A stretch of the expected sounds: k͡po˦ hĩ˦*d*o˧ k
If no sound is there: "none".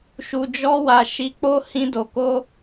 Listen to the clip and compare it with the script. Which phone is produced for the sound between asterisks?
d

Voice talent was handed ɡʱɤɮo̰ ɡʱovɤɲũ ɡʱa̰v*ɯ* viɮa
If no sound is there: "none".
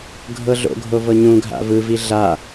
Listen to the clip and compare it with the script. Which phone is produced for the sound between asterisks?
ɯ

